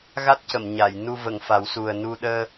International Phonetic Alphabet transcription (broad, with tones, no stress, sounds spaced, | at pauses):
ɣ a˦˥ t̚ c ə˨˩˨ m ɲ a˨˩˨ j n u˧ v ə˨˩˨ ŋ f a˨˩˦ w s u˨˩ ə̯ n u˧ ɗ əː˧